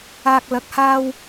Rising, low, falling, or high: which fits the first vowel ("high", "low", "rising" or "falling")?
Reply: high